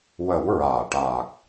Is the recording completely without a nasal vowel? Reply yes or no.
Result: yes